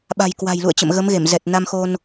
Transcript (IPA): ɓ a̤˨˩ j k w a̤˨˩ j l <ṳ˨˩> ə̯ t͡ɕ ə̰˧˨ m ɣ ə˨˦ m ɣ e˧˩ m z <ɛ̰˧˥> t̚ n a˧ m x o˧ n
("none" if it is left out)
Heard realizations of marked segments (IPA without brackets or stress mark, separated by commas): ṵ˧˨, ɛ˨˩